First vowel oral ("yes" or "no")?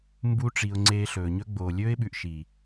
yes